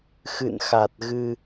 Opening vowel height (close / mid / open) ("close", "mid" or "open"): close